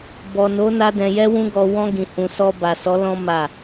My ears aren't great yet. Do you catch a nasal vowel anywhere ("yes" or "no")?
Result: yes